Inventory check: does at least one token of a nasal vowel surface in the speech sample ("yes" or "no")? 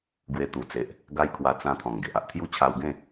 yes